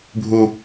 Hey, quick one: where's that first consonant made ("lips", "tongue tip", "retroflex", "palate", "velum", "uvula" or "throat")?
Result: lips